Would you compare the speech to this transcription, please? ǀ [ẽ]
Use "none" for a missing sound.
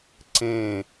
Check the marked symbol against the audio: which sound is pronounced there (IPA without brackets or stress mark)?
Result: ẽ